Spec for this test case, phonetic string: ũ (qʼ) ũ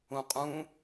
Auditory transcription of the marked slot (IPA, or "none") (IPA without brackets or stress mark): qʼ